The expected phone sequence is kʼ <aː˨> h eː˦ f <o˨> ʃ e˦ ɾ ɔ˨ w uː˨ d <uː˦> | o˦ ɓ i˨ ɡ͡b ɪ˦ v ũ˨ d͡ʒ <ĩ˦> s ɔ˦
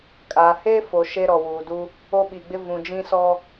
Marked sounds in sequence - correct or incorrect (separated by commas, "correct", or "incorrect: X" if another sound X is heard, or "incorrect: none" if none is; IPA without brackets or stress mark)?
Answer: correct, correct, incorrect: u˦, correct